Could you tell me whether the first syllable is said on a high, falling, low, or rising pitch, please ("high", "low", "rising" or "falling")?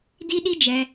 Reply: high